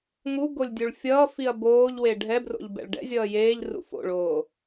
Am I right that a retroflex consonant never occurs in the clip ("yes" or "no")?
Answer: no